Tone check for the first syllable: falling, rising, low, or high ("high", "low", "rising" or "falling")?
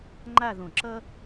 falling